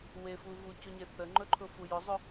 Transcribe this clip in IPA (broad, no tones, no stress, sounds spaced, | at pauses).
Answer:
w e f u v u c ʊ ɲ e θ ə ŋ͡ǃ ɵ ǃʰ ʊ f u j ʊ zˤ ʊ